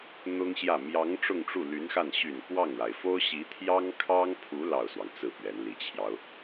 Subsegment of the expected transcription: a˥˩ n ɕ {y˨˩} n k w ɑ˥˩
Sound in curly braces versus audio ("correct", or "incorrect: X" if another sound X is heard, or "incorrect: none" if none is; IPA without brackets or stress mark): correct